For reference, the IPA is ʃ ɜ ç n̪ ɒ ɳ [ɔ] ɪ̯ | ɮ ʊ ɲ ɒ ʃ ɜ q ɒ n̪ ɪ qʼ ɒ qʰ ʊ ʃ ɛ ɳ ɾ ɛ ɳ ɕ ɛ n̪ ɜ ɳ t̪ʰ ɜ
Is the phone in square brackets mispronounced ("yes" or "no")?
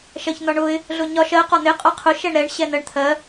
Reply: yes